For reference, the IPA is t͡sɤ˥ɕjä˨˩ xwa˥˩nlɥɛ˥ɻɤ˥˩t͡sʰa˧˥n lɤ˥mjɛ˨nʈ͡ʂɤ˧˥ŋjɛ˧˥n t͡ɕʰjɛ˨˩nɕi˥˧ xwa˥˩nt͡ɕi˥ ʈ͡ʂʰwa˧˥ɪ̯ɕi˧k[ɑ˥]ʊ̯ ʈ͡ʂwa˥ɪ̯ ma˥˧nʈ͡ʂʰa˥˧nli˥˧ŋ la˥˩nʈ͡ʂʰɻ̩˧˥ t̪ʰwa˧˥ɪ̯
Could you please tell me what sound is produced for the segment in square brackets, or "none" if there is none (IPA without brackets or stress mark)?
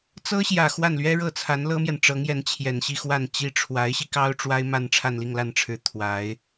ɑ˥